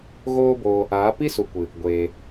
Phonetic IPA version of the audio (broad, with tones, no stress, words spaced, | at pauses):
ɣoː˦boː˧ | aː˨˦ pi˦su˨kʷɨ˨ | ɡʷeː˨